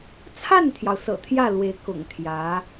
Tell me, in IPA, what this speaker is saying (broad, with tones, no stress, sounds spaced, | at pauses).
t͡sʰ a˥˩ n t̪ʰ j ɑ˩ ʊ̯ s ɤ̰˨˩ t̪ʰ j ä˥˩ l w e˧˥ ɪ̯ k ʊ̰˨˩ ŋ t̪ʰ j ä˧˥